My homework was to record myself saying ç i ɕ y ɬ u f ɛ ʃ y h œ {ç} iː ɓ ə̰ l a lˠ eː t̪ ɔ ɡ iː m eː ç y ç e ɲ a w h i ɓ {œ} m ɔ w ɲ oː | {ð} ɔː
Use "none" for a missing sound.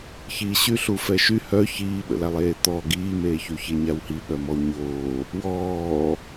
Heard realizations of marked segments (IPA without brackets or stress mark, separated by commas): ç, œ, w